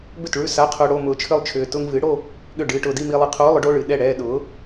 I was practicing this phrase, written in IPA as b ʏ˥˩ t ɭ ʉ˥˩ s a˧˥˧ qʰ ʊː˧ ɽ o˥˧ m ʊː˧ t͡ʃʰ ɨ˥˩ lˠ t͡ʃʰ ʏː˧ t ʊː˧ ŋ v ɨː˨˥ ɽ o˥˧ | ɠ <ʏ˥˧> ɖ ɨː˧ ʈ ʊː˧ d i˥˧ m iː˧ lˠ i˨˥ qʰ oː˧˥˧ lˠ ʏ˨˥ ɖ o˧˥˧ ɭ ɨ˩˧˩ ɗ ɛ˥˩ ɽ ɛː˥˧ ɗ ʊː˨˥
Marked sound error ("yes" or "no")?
yes